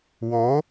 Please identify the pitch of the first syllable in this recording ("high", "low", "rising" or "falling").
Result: rising